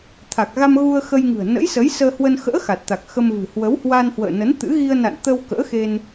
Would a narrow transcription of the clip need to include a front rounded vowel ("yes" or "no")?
no